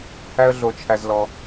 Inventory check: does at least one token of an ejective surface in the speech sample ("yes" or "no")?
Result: no